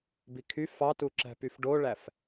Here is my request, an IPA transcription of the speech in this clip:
b i kʰ y f ɑ t u ǁ æ̤ p y f ɖ o ɭ æ f

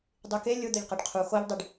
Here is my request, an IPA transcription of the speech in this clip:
dˤ i k e lʲ ʊ d̪ ʊ ʎ q e ɖ qʰ u x o ʎ dˤ i ɖ

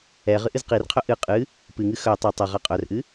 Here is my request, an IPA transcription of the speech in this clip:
ɛ ʁ ɨ ʔ ɨ z q i r qʰ œ ʔ ɨ qʼ ɨ | p ɨ ŋ ɨ x œ tˤ œ tˤ ɤ ʁ a qʼ œ r ʔ ɨ

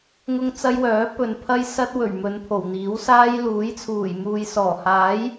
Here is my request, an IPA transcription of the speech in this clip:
ŋ ʊ˥ ŋ t͡s ɐ˥ j w œː˨˥ p ɵ˨ n pʰ ɐ˥ j s ɐ˥ t̚ w ɵ˨˩ ɥ m ɵ˨˧ n pʰ o˨˩ w n̪ iː˨˥ w s aː˥ j l uː˨˥ j t͡sʰ uː˨˩ j m uː˨ j s ɔː˨˩ h aː˨˥ j

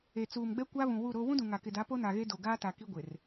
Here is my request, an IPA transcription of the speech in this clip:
e˨ t͡s uː˨ m ɡ͡b ɛ˦ kʷ a˦ β ũ˨ w u˦˨ ɾ o˦ w ũ˦ d ũ˨ ŋ a˨ k ɪ˨ d a˨˦ p o˦ n a˨ ɣ e˦ d o˨ ɡ aː˦ t a˨ k i˦ ɡʷ ɪ˨ r

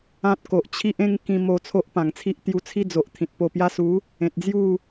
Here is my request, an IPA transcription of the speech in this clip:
ã˦ t̚ k o˨ ʔ t͡ɕʰ i˦ ʔ ẽ˦ ŋ k ĩ˧ m o˧ t͡sʰ o˦ ʔ p ã˨˩ ŋ t͡sʰ i˦ ʔ t̪ j u˧ t͡sʰ i˦ d͡z o˨ ʔ t̪ʰ ĩ˨ t̚ p o˧ p j a˦ s u˨˦ | ẽ˨ t̚ d͡z j u˥˧

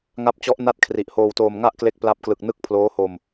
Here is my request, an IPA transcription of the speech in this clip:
ŋ a˦˥ p̚ t͡ɕ ɔ˦˥ ʔ n a˥˩ t̚ kʰ r i˨˩ ʔ h oː˧ w t oː˧ m ŋ a˥˩ ʔ k l e˦˥ k̚ p l a˦˥ p̚ k l ɯ˨˩ k̚ n ɯ˦˥ k̚ pʰ l oː˦˥ h o˧ m

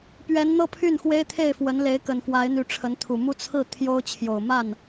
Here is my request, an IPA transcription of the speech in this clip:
p ɥ ɛ˧˥ n n̪ ɤ˥˧ pʰ y˥˩ n x w e˥ ɪ̯ t̪ʰ e˥˩ ɪ̯ f w ə˧˥ n l e˧˥ ɪ̯ k ə˨˩ n f w a˧˥ ɪ̯ n̪ y˧˥ ʈ͡ʂʰ ə˧˥ n t̪ʰ u˨˩ m u˥˧ t͡sʰ ɹ̩˥˩ t̪ʰ j o˥ ʊ̯ t͡ɕʰ j o˨˩ ʊ̯ m a˥˩ n

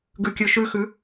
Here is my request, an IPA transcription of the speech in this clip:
ɡ ʉ kʲ ʉ ʃ ʉ x ʉ

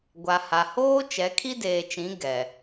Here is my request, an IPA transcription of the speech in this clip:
ɡʷ a˨ h a˨ h oː˦ t͡ʃ ɛ˨˦ kʰ i˦ d eː˨ t͡ʃ ĩ˨˦ ɡ ɛ˨

